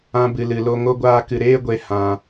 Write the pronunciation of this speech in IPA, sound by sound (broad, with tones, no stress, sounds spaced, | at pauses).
ã˧ b ɨ˨ l ɨ˨ l o˧ ŋ o˦ ɡʷ aː˦ k ɨ˧ ɾ eː˦ ɡʷ e˧ h ã˧